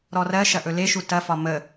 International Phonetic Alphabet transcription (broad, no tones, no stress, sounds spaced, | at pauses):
ɾ ɔ r ɜ ʃ ɐ ʔ ɵ l e ʃ u t ɐ f ɒ m ə